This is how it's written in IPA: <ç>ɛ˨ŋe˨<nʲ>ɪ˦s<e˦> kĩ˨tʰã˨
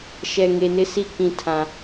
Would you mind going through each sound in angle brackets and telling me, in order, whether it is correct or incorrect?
incorrect, incorrect, incorrect

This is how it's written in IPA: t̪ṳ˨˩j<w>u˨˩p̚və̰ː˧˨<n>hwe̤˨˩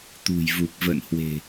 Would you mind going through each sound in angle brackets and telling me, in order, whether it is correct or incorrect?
incorrect, correct

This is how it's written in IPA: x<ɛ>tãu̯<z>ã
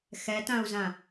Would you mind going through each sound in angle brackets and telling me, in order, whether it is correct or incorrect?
correct, correct

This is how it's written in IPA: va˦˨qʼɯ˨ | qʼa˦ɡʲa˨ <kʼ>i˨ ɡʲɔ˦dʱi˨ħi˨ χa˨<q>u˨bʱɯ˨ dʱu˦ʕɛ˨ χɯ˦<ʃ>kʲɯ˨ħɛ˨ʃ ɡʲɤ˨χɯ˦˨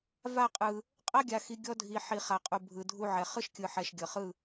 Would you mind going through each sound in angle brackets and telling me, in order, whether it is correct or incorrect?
incorrect, incorrect, correct

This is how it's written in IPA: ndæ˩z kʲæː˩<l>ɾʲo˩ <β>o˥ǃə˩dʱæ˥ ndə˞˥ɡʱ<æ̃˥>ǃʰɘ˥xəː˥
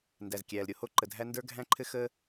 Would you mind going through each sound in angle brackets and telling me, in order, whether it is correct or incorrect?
correct, incorrect, correct

